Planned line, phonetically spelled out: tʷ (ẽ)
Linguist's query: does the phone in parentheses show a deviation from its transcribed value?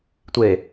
yes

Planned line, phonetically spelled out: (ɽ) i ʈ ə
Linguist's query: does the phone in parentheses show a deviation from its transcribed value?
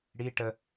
no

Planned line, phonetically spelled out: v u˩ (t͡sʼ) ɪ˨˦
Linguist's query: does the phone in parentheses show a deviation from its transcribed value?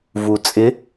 no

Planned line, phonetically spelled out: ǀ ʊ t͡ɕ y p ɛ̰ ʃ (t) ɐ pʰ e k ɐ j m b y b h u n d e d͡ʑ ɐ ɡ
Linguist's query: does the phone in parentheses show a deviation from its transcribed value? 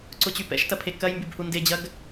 no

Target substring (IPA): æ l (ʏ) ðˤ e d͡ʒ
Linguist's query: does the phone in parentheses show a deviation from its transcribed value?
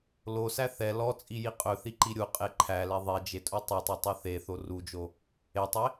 yes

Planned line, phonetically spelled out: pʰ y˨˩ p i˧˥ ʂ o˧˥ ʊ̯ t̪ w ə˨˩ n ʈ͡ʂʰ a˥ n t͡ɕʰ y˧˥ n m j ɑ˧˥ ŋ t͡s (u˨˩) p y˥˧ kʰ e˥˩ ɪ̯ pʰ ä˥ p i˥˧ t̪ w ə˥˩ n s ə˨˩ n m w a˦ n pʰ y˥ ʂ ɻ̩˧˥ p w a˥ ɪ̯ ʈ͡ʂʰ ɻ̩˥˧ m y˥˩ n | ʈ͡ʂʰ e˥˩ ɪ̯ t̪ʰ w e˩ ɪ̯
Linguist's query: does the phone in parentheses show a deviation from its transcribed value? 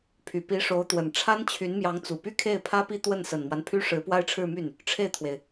no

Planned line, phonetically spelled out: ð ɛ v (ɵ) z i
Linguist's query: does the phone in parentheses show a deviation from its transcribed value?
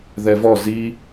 yes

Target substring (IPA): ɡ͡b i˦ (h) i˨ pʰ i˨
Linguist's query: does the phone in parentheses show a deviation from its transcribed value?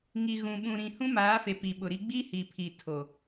no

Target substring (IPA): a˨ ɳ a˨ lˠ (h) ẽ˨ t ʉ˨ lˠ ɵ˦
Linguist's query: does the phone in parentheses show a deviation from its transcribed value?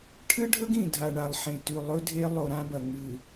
yes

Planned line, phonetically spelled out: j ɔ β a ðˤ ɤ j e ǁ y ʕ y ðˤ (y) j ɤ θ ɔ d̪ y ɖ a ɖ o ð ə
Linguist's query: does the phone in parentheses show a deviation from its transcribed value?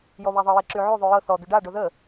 no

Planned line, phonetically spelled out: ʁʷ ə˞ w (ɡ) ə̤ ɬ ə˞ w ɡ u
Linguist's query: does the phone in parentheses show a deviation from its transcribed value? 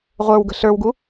no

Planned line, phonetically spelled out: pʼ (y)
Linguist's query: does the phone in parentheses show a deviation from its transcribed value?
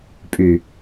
no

